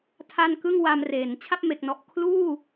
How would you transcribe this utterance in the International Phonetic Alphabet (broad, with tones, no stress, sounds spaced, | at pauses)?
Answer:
tʰ a˥˩ n k ɯ˥˩ ŋ w a˧ m r eː˩˦ n t͡ɕʰ a˥˩ p̚ m e˨˩ k̚ n ɔ˨˩ ʔ kʰ l uː˥˩